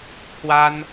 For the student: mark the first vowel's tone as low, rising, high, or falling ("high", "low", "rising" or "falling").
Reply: high